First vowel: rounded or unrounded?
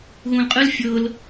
rounded